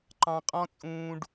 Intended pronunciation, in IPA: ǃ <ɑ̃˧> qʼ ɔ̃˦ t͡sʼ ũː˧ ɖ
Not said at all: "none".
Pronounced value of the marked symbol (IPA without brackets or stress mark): ɑ̃˧